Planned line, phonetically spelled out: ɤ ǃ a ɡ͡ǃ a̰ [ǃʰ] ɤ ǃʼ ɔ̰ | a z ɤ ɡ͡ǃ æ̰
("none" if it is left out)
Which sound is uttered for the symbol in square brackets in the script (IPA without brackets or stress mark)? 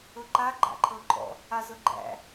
ǃʰ